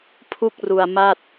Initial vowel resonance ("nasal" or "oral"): oral